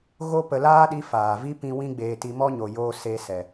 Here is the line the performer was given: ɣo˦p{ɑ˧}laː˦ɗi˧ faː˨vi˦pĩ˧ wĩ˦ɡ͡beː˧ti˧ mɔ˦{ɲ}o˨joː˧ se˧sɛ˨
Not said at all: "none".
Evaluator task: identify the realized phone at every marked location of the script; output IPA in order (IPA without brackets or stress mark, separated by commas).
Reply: ə˧, ɲ